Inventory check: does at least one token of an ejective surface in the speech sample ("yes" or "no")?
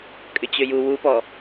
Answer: yes